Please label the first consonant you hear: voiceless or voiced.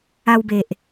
voiced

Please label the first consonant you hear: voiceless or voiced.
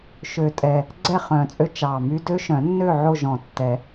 voiceless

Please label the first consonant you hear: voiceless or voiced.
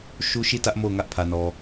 voiceless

